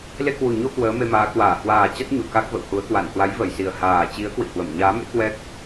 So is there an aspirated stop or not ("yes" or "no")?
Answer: no